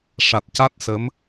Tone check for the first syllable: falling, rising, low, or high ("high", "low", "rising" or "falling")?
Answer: low